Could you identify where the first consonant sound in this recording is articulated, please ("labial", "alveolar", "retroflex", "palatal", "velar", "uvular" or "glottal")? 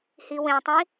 glottal